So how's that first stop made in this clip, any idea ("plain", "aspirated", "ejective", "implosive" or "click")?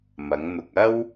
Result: plain